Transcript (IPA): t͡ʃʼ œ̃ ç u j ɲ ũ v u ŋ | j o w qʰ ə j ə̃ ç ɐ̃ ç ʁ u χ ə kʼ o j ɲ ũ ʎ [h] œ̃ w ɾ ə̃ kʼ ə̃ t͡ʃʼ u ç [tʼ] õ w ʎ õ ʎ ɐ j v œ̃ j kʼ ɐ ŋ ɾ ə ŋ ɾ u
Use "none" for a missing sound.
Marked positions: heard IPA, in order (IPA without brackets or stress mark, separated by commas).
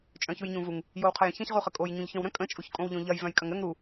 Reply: ç, kʼ